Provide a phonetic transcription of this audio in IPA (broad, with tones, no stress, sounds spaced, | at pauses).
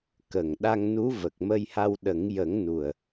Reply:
k ə˨˩ ŋ ɗ a˧ ŋ n u˧˥ v ə˨˩ k̚ m ə˧ j h a˧ w ɗ ə˨˩˦ ŋ j ə˨˩˦ ŋ n u˨˩ ə̯